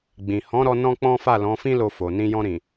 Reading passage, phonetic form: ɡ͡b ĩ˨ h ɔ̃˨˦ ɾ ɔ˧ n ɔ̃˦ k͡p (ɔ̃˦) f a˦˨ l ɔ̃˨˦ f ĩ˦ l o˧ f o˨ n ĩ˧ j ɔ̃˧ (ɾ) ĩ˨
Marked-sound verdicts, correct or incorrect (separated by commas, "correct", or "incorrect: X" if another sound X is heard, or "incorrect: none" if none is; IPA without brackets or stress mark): correct, correct